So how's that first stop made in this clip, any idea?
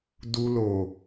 plain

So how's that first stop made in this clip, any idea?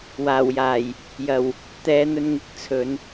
plain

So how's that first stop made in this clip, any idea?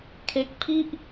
aspirated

